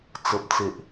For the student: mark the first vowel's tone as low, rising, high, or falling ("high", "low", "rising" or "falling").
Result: low